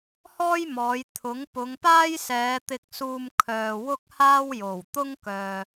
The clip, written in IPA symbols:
h ɔː˥ j m ɔː˨˧ j t̪ʰ ʊ˨˥ ŋ p ʊ˨˧ ŋ p aː˥ j s ɛː˨˧ t̪ ɪ˨ k̚ s uː˨ m kʰ œː˨ w ʊ˥ k̚ h aː˥ w j o˨˩ w t̪ ʊ˥ ŋ k œː˨

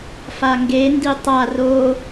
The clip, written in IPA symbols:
f a ŋ ɡ e n d i tˤ a r o

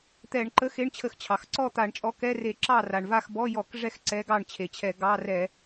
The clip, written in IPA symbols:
t̪ ɛ˧˩˧ ɳ ǃ ə˧˥˧ x e˧˥˧ ɳ t͡ɕʰ ə˧˩˧ x t͡ɕʰ ɑ˩ x ǀ ɔ˥˩ t̪ a˧˩˧ ɳ t͡ʃʼ ɔ˨˥ k ɛ˧˥˧ r e˧˩˧ ǁ ɑ˥˩ r a˩ ɳ v a˥˩ x b ɔ˧˥˧ j ɔ˧˩˧ k ʐ ɛ˥˩ x ǀ ɛ˨˥ ɡ ɑ˥˩ ɳ t͡ɕʰ e˩ t͡ɕʰ ɛ˧˩˧ ɡ ɑ˧˥˧ r ɛ˧˩˧

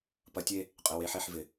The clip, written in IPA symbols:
p ɐ˨˦ tʲ e˦˨ | qʼ ɪ˩˧˩ w e˨˦ ħ e˧˩˧ ħ v ɪ˩

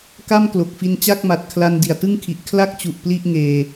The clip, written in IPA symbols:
k a˥˩ m k l o˨˩ k̚ f i˧ n t͡ɕ a˥˩ k̚ m a˨˩ t̚ kʰ l a˧ n d i˨˩ a̯ t ɯ˥˩ ŋ kʰ i˨˩ ʔ kʰ l a˥˩ k̚ t͡ɕ u˨˩ ʔ p l i˥˩ ʔ ŋ eː˧

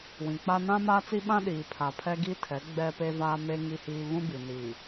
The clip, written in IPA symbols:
w ĩ˨ k͡p a˦ n ã˦ m aː˦ t͡s i˦ ɓ ã˦ ɗ iː˨ pʰ a˨ pʰ ɛ˦ ɡ i˦ tʰ ɛ˨˦ ɡ͡b ɛ˦ p e˦ v aː˦ m e˦ ŋ i˦ h iː˦ β ũ˦ b i˨ n iː˨

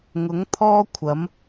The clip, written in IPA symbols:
ŋ ʊ˨˥ ŋ t̪ʰ ɔː˥ kʷʰ ɐ˨˥ m

